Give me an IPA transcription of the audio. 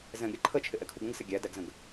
zɛ̃ɡɾʲʌ ǃʰət͡ʃʰɪʔɛkʰuɡ ə̃ɡsɪ ɡʲædæɡzə̃ɡ

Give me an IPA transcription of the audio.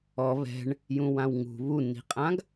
ɔ βɛ̤ɳ | jũwãwŋṳ βunːi̤qʼãɡ

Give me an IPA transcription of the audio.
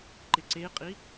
ǃɪǀeqʼi

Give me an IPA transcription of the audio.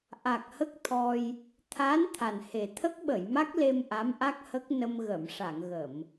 ʔa˨˩k̚hə˦˥k̚t̪ʰɔ˧j | t̪ʰa˧˥n t̪ʰa˨˩nhe˨˩ t̪ʰə˦˥k̚ɓə˨˩˨jma˦˥k̚le˧m ʔa˧˥mʔa˦˥k̚hə˦˥k̚ nə˧mɣə˨˩˨mʂa˨˩˨ŋɣə˨˩˨m

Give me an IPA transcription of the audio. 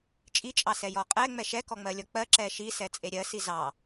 t͡ʃʼit͡ʃʼɑsɛ jɔqʼɛ ŋ͡mɛʃɛkɔŋ͡mɜ lʲɔk͡pɜ ǁɛʃi sɛt͡sʼeɾʲɜsi zɑ

